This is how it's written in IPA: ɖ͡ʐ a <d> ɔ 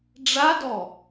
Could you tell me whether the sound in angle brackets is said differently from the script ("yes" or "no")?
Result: no